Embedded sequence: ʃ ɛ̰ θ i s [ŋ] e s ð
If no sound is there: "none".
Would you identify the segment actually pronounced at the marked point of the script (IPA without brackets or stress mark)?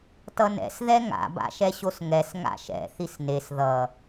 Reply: n